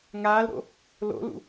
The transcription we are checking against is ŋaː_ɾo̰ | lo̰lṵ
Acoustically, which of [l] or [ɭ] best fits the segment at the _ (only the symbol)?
l